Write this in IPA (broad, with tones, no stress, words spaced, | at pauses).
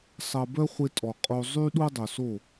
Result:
sˤɐ˧bœ˦χʷɪ˧ tʼɔ˨qʼo˧ zˤy˦ ɗu˦dˤœ˨so˦˨